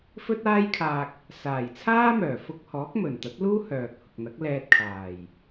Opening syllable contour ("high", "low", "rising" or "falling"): high